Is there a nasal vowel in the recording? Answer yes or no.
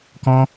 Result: yes